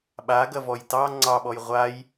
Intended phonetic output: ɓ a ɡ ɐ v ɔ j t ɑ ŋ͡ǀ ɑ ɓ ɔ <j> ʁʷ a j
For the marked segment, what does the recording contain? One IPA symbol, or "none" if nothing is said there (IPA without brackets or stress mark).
j